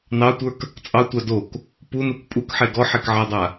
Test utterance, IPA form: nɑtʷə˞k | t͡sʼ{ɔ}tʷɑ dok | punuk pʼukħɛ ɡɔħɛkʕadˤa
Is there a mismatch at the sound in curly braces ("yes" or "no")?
yes